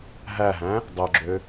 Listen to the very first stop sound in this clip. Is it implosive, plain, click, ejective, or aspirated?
plain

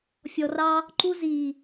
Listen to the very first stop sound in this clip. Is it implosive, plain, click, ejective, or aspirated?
click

